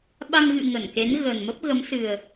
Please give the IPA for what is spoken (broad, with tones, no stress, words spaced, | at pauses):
ɓa˧ŋɣɨ̰˧˨ ŋə˧˩nke˨˦n ɣə˨˩nmə˦˥p̚ɣə˨˦m sɨ˨˩ə̯